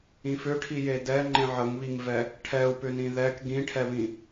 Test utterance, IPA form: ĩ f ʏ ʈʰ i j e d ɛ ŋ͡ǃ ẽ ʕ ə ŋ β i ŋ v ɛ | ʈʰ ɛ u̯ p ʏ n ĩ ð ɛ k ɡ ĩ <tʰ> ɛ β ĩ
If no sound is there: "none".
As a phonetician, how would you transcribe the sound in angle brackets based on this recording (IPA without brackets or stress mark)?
ʈʰ